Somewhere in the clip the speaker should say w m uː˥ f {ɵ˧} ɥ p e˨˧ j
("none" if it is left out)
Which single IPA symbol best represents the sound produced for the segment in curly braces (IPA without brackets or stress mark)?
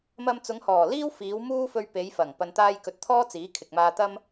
ɵ˧